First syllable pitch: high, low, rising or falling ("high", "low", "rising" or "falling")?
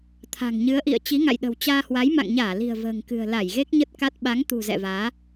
low